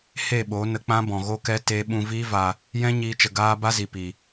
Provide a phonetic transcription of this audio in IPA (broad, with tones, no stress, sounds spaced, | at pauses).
h e˦˨ ɓ o˨˦ n ə˧ k͡p ã˦ b ɔ̃˨ ɣ o˦ k ɛ˦ t e˦ ɓ ũ˧ v iː˦ v a˧ | j ɛ̃˦ ɲ iː˦ t͡ʃ ə˧ ɡ aː˦ b a˦ z i˨ p i˨